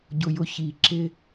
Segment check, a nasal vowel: absent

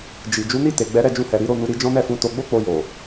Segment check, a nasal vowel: present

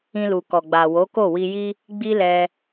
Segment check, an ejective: absent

